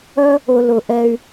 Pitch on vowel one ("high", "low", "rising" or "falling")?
high